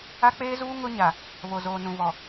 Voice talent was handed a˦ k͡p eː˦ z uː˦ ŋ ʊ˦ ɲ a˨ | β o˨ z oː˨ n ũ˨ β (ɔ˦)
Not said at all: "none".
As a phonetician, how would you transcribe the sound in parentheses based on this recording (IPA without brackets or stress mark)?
ɔ˨